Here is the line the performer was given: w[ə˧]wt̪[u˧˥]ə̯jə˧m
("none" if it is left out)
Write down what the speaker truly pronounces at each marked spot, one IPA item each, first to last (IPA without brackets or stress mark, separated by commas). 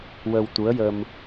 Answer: ə˧, u˧˥